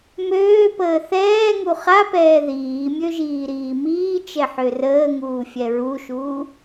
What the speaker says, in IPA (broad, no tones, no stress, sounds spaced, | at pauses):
m øː p əː θ ɛː ŋ u χ a p ɛː ð iː mʲ ø ʒ iː ɾ iː m iː t͡ʃ ɛ ħ ø r əː ŋ uː fʲ ɛ ɹ u ʃ uː